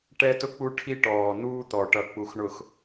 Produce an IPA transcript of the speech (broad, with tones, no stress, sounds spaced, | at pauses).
ʈ ɛ˦ t ʊ˦ k͡p u˦ ʈʰ i˦ ʈ ɔː˨ n̪ uː˦ t̪ ɔ˨ ʈ ʌ˨ k͡p u˨ x ɳ ʊ˨ x